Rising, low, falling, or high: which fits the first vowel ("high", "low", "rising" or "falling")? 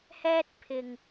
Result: high